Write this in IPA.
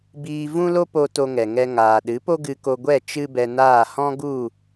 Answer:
biː˧vũ˦lo˦po˧ to˧ŋɛ˨ŋɛ˧ ŋaː˨ɗɨ˨˦po˦ɡɨ˧ ko˧ɡʷɛ˦˨ t͡ʃɨ˦bɛ˧naː˦˨ hɔ̃˦ɡu˦˨

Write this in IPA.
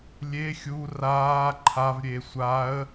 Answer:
lʲe xʲu raː ǃʰavɾʲe sʷaə̯

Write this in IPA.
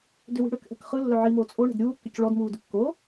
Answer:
dʏwi̤ɽʏkʔɛ̤k χɯ lːœʕimoː t͡sʼo ɳɛ̤dɾʲuːkːʏc ɭɔdmuː dʏkːo

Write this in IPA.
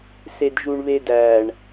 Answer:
sedʒuɳβedæɳ

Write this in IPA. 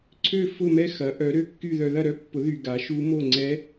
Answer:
ǀʰø˥˧fʊ˥˧mɛ˥˧ xɐ˨˥ʔœ˨˥ɾø˥˧kːy˥˧ ðœ˧ðɐ˥˧ɾœ˦˥pːʊ˨˥ ðy˧ɡa˨˥ʃu˦˥ mo˥˧ŋ͡ǀɛ˦˥

